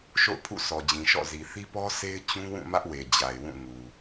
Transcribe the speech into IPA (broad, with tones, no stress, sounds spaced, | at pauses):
ʃ o̰˦˨ ʊ̯ pʰ ṵ˦˨ s ɔ˨ d͡ʑ ĩ˨ ʃ ɔ̰˦˨ z i˨ θ i˦ p ɔ˦ s e˦ ɪ̯ t͡ɕ ũ˦ w ũ˦˨ m ä˦ ʔ w e˨ d͡ʑ a˨ ɪ̯ w ũ˦˨ ŋ u˨